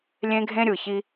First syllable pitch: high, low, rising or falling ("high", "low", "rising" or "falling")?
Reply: high